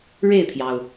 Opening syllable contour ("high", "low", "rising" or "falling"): falling